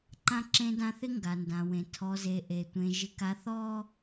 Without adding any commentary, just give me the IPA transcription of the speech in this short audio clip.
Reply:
ǃ ã˦ ǁ ẽ˦ d ã˦ θ ɪ˦ ŋ ɡ a˨ n d ã˨ w ẽ˨ tʰ ɔ˨ z e˨ ʔ e˨ tʷ ẽ˨ ʒ ɪ˨ k a˨ θ ɔ˦

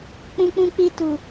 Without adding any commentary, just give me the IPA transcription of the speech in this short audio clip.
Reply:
k͡p ũ˧ k͡p ũ˧ k͡p i˧ t u˨

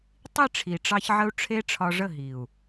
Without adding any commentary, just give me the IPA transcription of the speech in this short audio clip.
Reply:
tˤ i˦˨ ʈ͡ʂʰ i˨ ʈ͡ʂ ɑ˧ ç ʕ ə˧ u̯ ʈ͡ʂʰ e˦ ʈ͡ʂʰ ɒ˧ ʐ ə˦˨ ɦ i˨ u̯

